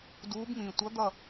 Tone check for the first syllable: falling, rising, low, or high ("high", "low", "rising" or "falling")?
rising